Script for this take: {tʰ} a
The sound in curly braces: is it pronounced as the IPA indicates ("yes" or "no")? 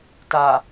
no